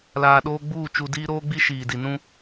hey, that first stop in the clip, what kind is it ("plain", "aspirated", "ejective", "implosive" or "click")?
implosive